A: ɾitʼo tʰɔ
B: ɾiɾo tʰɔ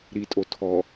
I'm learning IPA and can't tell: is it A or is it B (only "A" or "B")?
A